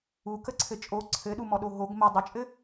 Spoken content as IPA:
u k ə ǀʰ ɘ t͡ʃʼ o ǀʰ ɘ ɗ u m ɔ ɗ o ɦ o ɡ m ə dˤ ə t͡ʃʼ ɘ

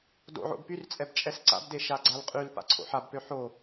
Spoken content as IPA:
d o̰ ʕ o̰ b p y r t͡sʼ ɛ b t͡ʃʼ ɛ s ǀ a̰ b d e ʃ a ɡ͡ǀ a l qʼ y l p a̰ ǀʰ o̰ ħ a b p ø ħ o

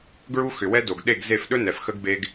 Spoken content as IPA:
ɡ ɹ u˦ x ʏ˨ w ɛ˦ d o˨ ɡ ɗ e˦˨ ɡ z e˦˨ f ɗ ɵ˦ n ɛ˨ f x ə˦ ɡ b e˦ ɡ

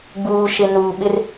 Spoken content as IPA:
ɡ͡b uː˨ ʃ ɪ˨ n uː˨ ɓ ɪ˦ r

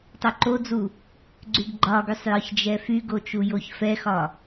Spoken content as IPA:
tˤ o ǃ o d͡z u | ɡ͡ǀ y ɡ ɡ͡ǃ ɒ ɡ y sˤ j ɒ ç d͡ʒ ɛ f y ɡ o t͡ʃ u j o ç f ɛ x ɒ

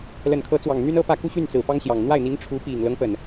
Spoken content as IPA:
l ə˨˩ n kʰ ɤ˧˥ t͡s w ɑ˨˩ ŋ n̪ y˥ n ɤ˥ p ä˥˧ k u˥˧ ɕ y˥˩ n t͡s ɹ̩˨˩ p ɑ˥ ŋ ɕ j ɑ˨˩ ŋ n̪ w a˥˩ ɪ̯ n̪ i˧˥ ŋ ʈ͡ʂʰ u˧˥ p i˨˩ ŋ l ɤ˦ ŋ p ə˩ n

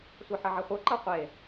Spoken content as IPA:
sʷ ɤ ħ ɐ ʕ ɐ χʷ ɤ ǃ ɤ qʷ e

